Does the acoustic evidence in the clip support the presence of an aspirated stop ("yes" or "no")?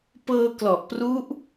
no